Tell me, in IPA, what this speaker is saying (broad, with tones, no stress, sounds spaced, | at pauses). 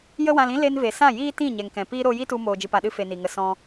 j ə˦ w ã˧ l ĩ˦ l e˧ n v e˨ s ã˦˨ j iː˦ t ĩ˦˨ ɲ ɛ˨ ŋ k ɛ̃˨ p iː˦ ɾ o˧ j i˦ t u˧ m oː˧ d͡ʒ ɨ˧ p a˧ ɗ ɨ˦ f e˧ n i˨ ŋ ə˧ s ɔ̃˦